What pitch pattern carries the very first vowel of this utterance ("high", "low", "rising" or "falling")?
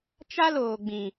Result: high